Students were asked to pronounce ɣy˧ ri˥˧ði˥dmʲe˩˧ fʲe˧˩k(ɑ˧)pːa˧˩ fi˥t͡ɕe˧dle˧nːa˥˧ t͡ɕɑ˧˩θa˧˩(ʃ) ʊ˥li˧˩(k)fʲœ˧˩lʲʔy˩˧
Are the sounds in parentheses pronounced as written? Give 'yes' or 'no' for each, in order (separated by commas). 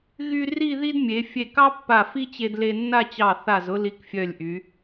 no, no, yes